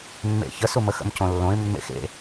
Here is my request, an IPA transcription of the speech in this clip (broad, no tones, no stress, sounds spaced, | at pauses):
mː ḛ ç ə s u m ə x ə̰ m c õ lː õ ɪ̯ mː ḛ x ḛ